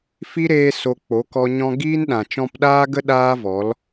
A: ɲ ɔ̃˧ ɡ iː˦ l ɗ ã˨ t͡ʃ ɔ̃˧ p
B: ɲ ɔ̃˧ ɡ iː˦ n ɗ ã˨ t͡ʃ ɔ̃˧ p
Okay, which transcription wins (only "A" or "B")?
B